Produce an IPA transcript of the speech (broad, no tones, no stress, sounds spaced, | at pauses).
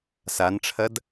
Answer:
s a n ʈ͡ʂʰ ɐ d